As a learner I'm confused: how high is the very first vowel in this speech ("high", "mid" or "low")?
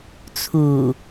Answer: high